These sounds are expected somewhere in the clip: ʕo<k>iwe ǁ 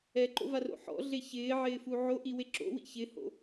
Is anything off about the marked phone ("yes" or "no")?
yes